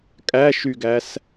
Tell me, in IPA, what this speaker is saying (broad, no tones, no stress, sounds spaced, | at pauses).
kʼ æ ʃ y ɡ æ s